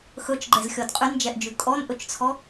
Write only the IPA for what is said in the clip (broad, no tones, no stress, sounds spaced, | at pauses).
x ɵ t͡ʃ ɡ͡ǃ ɛ z xʲ ɔ d qʼ y n d͡ʒ ɛ ʔ d͡ʒ ʉ kʼ ɔ n ʔ ɵ t͡ʃ t͡sʰ ɔ